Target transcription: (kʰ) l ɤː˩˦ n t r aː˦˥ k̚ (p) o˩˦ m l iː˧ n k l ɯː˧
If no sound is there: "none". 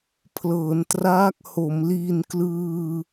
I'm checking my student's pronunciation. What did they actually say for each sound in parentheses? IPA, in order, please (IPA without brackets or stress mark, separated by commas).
pʰ, h